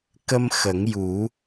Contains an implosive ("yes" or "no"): no